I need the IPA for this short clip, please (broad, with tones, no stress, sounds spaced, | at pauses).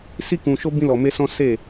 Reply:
s i˦ k ũ˧ ʃ o˦ b ĩ˦ l ɔ˧ m e˦ s ɔ̃˦ s e˦˨